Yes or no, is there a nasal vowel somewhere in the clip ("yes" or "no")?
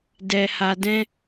yes